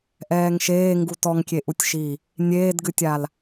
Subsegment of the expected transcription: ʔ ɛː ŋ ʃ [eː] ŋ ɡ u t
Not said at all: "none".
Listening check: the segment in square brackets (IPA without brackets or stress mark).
eː